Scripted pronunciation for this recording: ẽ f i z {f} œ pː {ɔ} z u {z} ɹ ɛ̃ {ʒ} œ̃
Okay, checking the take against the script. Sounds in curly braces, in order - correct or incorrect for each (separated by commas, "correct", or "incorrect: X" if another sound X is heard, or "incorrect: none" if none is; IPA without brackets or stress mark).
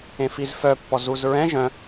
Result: correct, correct, correct, correct